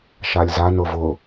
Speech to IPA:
ʃ a lʲ z a n ʊ v ʊ

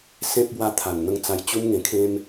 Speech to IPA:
s ẽ˦ p̚ b w a˦ t̪ʰ a˨˩ n n̪ ə˧ ŋ t͡s a˧ j t͡ɕ u˦ m ŋ ẽ˧ kʰ ẽ˦ m

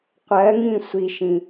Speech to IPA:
qʷ ɜ ŋ ĩ sʷ i ʃ ĩ

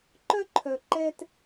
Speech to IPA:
ǃ œ˦ ǃʰ œ˨ ǃ ɛ˦ t

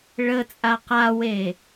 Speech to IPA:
ɭ ə t͡sʼ a q a w e

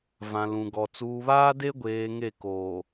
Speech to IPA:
v ã˨ l ũ˨ ɡ ɔ˨ t͡s uː˨ β aː˦ d e˦ ɡʷ eː˨ ŋ e˦˨ k oː˨

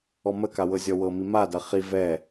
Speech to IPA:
ɔ m ə k a w ɤ zʲ ɔ w ɤ m i m a d ɐ χ i v ɛ

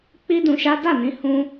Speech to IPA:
k͡p i˦ d ũ˧ ʃ a˦ d a˦˨ n ĩ˧ h ũ˧

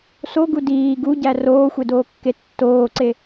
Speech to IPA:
s o ɡ u d iː ɡ u ɟ æ r oː xʷ e d oː kː e tː oː ǀ e

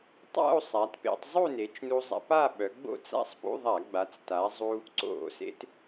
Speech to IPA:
tˤ a̰˥˧ u̯ sˤ a˩˧ t p ḛ˧ tˤ zˤ u˥˧ n e˩˧ t͡ʃ n u˧ zˤ a̰˧ p a˥˧ ɓ œ˩˧ ɡ͡b o̰˥˧ t͡s a̰˥˧ sˤ p ṵ˧˥˧ ðˤ a˧˩˧ ɡ͡b a˩˧ t͡s t a˩˧ zˤ u˧ | ǀ o̰˧˩˧ s ḛ˧ t

